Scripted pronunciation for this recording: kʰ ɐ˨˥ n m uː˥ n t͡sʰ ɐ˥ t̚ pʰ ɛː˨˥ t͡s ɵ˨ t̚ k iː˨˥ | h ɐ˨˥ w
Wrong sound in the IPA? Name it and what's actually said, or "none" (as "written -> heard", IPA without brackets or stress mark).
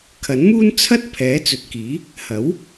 none